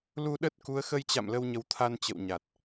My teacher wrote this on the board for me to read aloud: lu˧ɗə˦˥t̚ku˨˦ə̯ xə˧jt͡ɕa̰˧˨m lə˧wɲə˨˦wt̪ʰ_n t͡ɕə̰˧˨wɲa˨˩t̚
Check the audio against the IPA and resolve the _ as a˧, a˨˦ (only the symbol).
a˧